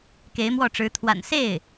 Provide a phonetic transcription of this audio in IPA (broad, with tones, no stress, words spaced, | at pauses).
ke˧˥ɪ̯mwɔ˥˩ʈ͡ʂɻ̩˧˥ t̪ʰwa̰˨˩nse˥˩ɪ̯